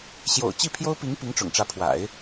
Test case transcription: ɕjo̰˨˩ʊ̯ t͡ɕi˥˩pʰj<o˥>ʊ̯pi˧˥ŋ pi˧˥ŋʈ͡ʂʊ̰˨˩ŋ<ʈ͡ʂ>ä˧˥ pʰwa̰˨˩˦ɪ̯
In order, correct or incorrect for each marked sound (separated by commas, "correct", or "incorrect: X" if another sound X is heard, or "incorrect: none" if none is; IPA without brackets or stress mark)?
correct, correct